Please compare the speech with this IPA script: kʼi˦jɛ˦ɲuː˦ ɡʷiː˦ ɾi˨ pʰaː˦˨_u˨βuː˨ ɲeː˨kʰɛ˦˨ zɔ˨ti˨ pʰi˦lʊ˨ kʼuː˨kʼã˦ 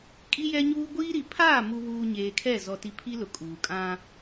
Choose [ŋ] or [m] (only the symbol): m